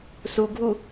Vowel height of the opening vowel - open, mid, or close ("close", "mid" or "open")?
close